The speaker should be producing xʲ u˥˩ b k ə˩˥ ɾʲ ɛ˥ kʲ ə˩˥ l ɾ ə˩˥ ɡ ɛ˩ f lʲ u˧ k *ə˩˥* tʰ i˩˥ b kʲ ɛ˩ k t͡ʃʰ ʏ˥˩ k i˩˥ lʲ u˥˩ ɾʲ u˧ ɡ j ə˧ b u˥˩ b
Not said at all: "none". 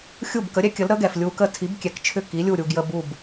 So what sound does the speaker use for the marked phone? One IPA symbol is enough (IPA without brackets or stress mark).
ə˥˩